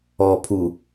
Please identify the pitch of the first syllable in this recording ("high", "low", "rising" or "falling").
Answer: low